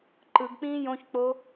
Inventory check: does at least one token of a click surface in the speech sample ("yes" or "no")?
yes